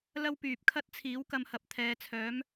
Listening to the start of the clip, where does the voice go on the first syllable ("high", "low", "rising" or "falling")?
high